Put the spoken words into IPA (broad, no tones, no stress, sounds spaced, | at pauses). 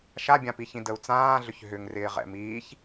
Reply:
ʃ a bʲ ã p i ç ĩ d ə u̯ t͡s ãː ɮ ʏ ç ɦ ʏ ŋ r ɪː ʁ ɛ̰ m iː ç